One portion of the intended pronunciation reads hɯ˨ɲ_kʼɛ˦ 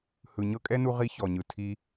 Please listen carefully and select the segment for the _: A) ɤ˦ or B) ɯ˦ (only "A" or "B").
A